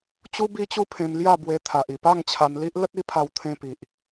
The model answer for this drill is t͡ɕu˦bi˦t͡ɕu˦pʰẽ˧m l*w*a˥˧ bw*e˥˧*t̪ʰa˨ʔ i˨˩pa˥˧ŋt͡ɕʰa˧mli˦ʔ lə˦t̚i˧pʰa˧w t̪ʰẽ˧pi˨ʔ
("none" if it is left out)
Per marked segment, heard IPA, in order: j, e˧

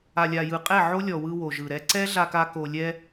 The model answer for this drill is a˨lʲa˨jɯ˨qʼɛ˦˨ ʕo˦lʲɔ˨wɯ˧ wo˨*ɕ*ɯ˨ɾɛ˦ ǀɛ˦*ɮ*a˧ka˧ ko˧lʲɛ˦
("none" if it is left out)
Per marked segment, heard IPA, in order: ʒ, ɮ

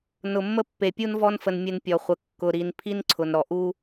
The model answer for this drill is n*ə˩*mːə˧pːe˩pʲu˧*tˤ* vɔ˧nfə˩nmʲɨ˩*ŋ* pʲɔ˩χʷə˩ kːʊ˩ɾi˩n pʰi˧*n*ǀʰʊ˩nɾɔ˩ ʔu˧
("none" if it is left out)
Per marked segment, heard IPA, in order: ʊ˩, n, n, n

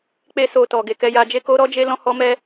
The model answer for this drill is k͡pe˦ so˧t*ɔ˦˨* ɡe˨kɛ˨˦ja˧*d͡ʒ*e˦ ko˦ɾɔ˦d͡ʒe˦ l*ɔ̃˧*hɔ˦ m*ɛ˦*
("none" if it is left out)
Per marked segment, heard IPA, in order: ɔ˨, d͡ʒ, ɔ̃˦, ɛ˦

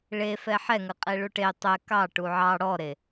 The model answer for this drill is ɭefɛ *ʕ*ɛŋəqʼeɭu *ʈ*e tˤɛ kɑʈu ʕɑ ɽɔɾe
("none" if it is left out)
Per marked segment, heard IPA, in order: ħ, ʈ

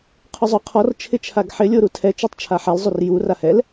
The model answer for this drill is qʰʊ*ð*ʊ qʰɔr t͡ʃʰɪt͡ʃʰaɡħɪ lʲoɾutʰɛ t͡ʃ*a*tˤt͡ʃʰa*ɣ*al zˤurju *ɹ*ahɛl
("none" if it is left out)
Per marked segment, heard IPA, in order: zˤ, a, ħ, r

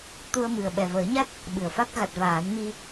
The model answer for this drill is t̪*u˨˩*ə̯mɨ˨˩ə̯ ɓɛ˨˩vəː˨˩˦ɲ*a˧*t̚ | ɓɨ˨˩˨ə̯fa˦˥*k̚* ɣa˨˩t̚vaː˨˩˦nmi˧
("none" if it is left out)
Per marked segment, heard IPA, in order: u˧, a˦˥, k̚

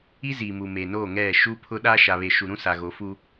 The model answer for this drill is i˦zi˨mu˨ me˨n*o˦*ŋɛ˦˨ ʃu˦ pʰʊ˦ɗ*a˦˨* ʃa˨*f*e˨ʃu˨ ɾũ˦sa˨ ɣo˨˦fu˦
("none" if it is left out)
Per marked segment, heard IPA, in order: o˦˨, a˦, β

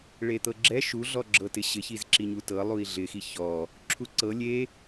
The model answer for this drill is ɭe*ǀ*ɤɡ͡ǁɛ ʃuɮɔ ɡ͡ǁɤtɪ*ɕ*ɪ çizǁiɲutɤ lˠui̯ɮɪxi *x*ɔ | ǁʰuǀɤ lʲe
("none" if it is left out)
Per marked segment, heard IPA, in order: t̪, ɕ, ç

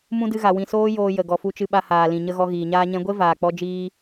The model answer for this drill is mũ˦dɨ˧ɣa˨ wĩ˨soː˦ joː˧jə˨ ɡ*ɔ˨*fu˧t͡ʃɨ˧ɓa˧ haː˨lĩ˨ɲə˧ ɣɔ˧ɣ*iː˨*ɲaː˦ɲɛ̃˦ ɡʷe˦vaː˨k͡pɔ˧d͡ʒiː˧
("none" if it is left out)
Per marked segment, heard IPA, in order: ɔ˨, iː˨

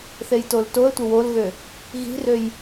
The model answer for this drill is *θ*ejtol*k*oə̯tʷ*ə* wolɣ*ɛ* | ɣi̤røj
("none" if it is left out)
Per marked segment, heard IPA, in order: θ, t, ə, ø

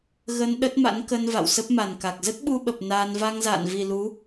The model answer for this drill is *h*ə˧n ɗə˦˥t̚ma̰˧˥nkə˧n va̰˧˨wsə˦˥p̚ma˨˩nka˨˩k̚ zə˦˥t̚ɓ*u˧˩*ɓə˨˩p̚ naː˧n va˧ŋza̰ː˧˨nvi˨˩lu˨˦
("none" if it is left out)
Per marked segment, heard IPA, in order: ɣ, u˧

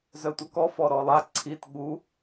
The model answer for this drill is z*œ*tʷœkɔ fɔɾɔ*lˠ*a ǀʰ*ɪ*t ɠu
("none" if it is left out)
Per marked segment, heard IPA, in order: œ, lˠ, i

